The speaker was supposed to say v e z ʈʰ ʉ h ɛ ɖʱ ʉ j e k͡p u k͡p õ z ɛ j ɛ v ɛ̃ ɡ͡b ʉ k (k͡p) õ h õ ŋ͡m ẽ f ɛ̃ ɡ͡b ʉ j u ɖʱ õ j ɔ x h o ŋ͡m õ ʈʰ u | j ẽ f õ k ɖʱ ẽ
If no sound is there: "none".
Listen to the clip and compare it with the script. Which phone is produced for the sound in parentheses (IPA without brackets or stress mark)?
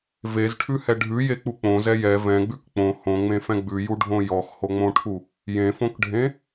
k͡p